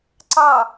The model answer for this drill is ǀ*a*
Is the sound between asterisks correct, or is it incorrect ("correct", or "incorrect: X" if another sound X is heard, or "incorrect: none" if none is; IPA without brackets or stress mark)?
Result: incorrect: ɑ